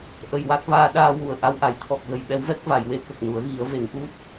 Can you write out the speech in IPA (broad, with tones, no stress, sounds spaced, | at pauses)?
ʔ ə˨˩ j w a˦˥ k̚ v aː˧ ɗ aː˧ w u˨˩ ə̯ ʔ a˧ w ʔ a˨˩˦ j t̪ʰ ɔ˨˩ k̚ ɣ ə˨˩ j ɓ ɛ˧˥ w v ɛ˦˥ k̚ v a˨˩˨ j w e˧˥ k ə˨˩ k̚ n u˨˩˦ ə̯ ɣ i˨˩˦ ə̯ v e˨˩˦ ŋ ʔ u˦˥ t̚